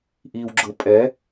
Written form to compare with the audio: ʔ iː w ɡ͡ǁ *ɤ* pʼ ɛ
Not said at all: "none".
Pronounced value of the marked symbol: ɤ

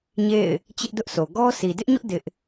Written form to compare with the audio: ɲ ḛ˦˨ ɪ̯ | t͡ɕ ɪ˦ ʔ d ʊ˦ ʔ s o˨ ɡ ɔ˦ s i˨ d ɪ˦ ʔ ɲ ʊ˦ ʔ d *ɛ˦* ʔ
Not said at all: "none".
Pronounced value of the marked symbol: ɪ˦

